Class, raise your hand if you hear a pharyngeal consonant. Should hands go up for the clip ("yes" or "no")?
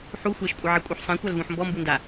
yes